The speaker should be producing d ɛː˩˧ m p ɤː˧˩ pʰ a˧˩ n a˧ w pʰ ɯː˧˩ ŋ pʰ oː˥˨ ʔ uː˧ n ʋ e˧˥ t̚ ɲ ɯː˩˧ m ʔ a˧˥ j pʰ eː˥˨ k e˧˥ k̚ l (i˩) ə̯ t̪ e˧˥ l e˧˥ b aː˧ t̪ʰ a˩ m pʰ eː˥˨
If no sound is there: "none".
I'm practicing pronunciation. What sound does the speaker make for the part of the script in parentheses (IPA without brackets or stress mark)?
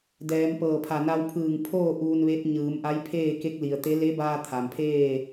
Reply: i˩